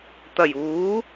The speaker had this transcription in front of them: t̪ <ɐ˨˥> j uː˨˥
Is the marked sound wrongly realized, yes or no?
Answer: yes